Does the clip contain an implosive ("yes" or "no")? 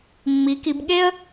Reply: yes